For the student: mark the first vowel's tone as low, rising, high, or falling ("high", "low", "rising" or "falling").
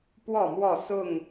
falling